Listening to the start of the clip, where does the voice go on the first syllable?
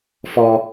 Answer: high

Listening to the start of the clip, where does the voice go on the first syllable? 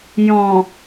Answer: low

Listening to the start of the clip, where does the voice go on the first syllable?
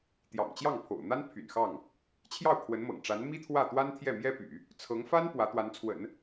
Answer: low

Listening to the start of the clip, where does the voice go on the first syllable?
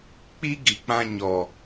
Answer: high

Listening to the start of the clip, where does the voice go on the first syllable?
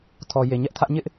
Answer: low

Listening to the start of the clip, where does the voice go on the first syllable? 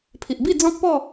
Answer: low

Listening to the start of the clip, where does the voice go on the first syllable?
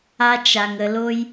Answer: high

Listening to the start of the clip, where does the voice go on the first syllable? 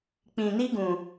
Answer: low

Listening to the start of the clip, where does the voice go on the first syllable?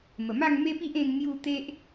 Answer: low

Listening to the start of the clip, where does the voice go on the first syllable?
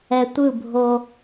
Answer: low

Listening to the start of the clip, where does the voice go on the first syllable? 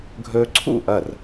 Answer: high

